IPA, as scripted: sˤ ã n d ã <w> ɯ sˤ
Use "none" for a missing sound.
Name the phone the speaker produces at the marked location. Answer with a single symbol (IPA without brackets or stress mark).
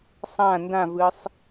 v